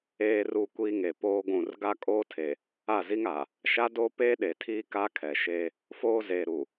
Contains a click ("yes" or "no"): no